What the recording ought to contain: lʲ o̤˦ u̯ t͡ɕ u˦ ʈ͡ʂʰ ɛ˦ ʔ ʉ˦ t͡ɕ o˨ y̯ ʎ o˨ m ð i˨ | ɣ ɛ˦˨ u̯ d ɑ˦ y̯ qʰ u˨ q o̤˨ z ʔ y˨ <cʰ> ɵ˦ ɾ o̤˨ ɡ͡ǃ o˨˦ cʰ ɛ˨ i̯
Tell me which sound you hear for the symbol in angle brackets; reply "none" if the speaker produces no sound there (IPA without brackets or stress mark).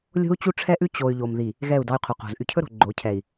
cʰ